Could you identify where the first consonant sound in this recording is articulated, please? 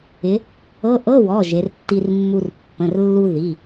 glottal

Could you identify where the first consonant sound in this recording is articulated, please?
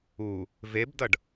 labial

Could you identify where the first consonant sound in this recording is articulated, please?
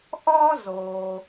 glottal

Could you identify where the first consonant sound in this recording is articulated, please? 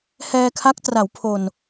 glottal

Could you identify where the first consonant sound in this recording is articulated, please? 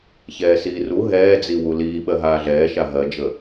palatal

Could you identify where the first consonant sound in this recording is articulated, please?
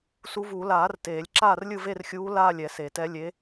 alveolar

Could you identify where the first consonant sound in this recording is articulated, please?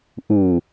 glottal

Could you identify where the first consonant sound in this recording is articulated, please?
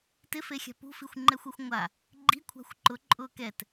alveolar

